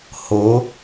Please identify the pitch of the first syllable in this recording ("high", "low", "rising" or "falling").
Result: rising